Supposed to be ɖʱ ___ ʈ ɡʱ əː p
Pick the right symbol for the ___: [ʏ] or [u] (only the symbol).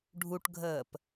u